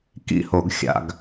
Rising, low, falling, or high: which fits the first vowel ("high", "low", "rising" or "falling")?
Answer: falling